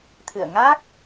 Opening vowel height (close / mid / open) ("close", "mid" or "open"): close